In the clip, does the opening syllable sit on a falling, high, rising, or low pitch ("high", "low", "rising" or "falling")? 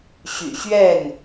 low